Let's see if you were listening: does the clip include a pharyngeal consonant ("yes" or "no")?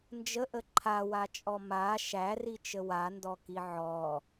yes